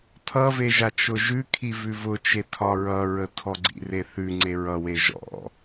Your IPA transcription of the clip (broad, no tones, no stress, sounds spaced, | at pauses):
tʰ ʌ v e ʒ a t͡ʃ ʊ ʒ ʉ kʰ i v ʉ v ʊ t͡ʃ e tʰ ɒ ɹ ʌ ɹ ə tʰ ɔ ɡ͡ǀ ḭ r e θ ʉ ŋ͡ǀ e ɹ ʌ w e ʒ ɔ̰